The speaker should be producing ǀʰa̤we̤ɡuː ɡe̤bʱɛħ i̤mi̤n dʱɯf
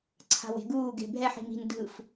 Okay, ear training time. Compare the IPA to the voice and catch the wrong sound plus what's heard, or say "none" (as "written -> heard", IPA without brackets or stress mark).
none